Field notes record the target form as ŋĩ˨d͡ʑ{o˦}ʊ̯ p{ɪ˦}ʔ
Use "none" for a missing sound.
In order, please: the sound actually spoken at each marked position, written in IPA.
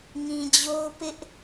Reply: o˦, ɪ˦

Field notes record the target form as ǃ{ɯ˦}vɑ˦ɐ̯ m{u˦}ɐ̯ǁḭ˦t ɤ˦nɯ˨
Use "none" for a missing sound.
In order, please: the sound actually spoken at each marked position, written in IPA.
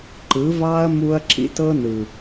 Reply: ɯ˨˦, u˦

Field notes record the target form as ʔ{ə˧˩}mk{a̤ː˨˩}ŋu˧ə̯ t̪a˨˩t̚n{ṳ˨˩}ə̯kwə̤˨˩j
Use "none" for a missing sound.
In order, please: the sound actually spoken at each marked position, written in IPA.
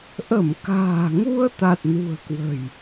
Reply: ə˧˩, a̤ː˨˩, ṳ˨˩

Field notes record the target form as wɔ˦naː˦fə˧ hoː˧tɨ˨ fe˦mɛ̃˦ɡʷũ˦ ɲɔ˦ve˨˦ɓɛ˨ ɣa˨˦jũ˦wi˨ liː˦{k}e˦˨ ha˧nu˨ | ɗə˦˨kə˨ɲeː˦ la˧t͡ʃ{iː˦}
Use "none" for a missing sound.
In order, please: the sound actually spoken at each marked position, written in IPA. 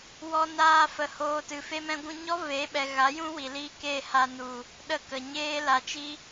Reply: k, i˦

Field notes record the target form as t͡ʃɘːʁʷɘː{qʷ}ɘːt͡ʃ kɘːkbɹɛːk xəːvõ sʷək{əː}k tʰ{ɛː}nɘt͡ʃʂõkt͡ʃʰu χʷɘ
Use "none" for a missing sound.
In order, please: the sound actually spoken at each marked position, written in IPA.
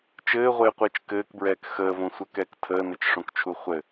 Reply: qʷ, ɛː, əː

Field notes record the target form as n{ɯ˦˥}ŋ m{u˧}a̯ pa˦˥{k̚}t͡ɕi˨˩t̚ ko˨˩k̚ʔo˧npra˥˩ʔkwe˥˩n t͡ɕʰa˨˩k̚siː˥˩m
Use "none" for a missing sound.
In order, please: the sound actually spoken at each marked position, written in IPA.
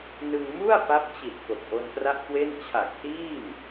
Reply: ɯ˧, u˥˩, p̚

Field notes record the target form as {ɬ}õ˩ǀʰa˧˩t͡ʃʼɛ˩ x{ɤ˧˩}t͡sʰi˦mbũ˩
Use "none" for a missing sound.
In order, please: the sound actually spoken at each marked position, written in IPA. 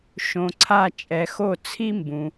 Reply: ʃ, o˧˩

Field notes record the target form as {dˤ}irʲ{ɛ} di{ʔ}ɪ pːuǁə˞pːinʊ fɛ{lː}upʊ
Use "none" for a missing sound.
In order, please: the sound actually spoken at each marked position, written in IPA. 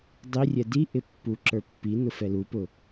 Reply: dˤ, ɛ, ʔ, l

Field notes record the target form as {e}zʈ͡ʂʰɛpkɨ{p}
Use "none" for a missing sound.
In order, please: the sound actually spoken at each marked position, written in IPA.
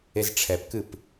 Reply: e, p

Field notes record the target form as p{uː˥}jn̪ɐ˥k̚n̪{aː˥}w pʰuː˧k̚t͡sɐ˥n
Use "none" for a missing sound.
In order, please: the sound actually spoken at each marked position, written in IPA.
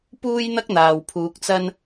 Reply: uː˥, aː˨

